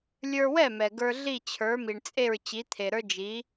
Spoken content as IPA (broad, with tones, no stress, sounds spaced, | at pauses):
lʲ ə˞˧ w ɛ˥˩ m ɛ˩ ɡ ə˞˧ ɮ i˥˩ t͡ɕʰ ə˞˩˥ m i˩ ɳ t͡sʼ e˥˩ ɹ t͡ɕ i˩˥ t̪ʰ e˩ ɾ ə˞˥ d͡ʒ i˩˥